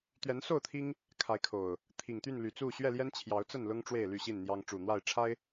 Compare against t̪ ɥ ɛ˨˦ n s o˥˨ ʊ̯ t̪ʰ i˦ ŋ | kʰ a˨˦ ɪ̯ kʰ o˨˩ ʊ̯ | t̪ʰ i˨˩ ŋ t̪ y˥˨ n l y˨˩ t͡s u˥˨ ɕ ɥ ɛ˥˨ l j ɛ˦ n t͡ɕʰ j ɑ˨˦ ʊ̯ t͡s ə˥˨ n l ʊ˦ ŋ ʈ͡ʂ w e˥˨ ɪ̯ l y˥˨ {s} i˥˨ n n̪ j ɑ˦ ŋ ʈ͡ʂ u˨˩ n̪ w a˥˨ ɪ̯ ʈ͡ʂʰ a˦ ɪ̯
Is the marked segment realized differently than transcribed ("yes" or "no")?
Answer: yes